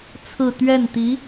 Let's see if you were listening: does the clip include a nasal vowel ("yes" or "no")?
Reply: no